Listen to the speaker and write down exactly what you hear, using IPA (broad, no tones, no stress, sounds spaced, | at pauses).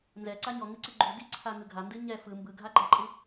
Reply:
n z ɛ ǀ a ɲ ɔ ŋ ɨ ǀ ɨ ɡ͡ǃ u d i ǀʰ a ŋ ɯ ɡʱ a n d ɨ ɲ ɛ f ɯ m b ɯ ɡʱ a ɡ͡ǃ a ǃʼ ɨ